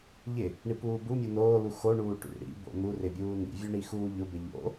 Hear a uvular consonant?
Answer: no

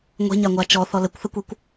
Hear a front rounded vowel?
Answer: no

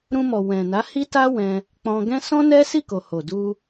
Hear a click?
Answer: no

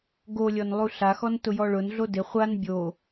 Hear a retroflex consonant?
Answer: yes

